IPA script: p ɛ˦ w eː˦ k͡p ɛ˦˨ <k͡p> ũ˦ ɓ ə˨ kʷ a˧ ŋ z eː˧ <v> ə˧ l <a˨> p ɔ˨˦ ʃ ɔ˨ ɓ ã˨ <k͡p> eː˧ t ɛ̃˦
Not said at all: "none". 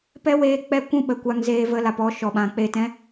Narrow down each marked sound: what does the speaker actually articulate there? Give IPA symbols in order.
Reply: kʷ, v, a˨, k͡p

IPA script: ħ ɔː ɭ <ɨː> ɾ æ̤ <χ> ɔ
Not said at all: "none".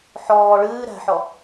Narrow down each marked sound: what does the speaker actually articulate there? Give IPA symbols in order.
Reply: ɨː, ħ

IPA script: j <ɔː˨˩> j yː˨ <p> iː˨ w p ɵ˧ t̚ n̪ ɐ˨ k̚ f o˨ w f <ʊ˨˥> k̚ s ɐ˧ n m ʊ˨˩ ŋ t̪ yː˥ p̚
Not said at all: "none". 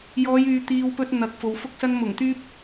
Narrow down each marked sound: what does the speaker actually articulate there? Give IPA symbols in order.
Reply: ɔː˨˧, t̪, ʊ˧

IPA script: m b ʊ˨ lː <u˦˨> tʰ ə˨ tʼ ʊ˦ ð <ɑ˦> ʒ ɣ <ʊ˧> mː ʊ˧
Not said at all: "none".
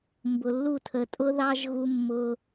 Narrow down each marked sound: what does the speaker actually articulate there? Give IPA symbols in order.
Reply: u˦˨, ɑ˦, u˧

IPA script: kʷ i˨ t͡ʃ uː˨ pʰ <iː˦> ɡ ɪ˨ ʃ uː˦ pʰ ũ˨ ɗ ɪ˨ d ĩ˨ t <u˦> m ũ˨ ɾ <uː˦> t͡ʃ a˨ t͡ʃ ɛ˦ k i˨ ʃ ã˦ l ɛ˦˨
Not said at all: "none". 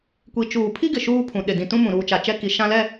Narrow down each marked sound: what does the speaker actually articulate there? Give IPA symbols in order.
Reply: i˦, ũ˦, uː˨

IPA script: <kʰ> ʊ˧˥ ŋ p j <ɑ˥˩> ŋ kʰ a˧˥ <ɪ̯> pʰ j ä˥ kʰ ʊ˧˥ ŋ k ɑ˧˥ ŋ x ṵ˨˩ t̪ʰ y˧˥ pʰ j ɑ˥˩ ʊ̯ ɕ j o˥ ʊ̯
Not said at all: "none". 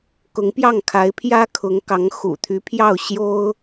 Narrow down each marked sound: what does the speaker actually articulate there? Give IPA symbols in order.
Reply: k, ɑ˥˩, ɪ̯

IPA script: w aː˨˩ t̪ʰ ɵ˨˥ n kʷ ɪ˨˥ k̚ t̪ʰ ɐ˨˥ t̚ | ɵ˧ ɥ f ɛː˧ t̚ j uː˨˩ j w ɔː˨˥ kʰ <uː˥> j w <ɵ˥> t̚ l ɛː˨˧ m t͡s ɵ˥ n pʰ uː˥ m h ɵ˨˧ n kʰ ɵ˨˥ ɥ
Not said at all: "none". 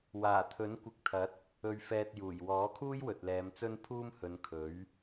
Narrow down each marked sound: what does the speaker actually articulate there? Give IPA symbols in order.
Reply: uː˥, ɵ˨

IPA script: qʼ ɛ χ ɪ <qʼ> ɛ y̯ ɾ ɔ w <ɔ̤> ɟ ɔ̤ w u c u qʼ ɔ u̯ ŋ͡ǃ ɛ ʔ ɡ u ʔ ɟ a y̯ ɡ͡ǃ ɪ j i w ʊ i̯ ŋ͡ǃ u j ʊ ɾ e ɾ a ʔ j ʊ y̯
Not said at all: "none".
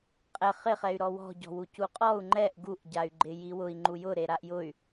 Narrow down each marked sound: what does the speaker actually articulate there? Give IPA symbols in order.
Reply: χ, ɔ̤

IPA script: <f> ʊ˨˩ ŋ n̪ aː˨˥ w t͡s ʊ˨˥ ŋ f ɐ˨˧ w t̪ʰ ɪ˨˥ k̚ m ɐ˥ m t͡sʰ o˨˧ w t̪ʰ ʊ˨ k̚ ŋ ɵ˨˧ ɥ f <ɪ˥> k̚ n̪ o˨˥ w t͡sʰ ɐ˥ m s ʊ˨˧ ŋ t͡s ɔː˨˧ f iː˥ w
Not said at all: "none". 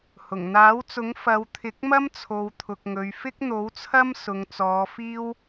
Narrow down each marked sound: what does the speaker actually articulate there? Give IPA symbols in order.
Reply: h, ɪ˥

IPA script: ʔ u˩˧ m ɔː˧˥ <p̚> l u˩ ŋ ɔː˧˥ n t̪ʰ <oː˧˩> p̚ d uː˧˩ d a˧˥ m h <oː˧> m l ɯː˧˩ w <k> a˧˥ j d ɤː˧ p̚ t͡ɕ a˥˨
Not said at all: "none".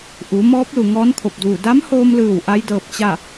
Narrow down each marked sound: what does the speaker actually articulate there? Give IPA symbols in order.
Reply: p̚, o˧˩, oː˧, ʔ

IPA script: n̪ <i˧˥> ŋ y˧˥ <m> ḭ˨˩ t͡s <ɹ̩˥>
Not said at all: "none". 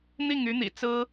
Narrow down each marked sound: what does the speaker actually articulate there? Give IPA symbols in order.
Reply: i˥˩, n̪, ɹ̩˥

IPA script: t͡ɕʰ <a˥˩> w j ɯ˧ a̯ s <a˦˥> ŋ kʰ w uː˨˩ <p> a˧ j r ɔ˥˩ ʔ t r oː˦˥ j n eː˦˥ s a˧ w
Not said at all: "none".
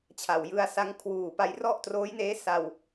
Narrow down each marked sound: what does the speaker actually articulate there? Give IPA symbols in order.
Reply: a˨˩, a˦˥, p

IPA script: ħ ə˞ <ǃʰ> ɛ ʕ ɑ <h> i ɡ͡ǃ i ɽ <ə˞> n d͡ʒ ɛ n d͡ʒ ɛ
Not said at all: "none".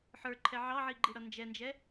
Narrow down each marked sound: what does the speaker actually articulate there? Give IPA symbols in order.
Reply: ǃʰ, ʕ, ʌ

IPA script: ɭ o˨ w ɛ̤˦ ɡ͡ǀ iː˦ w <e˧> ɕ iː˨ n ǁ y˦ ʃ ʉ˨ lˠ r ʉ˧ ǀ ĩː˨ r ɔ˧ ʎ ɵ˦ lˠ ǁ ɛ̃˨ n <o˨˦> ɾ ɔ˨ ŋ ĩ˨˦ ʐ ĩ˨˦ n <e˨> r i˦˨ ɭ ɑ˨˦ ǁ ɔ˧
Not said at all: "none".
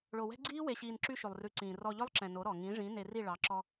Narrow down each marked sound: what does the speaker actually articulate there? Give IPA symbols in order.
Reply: e˨, o˨˦, e˧

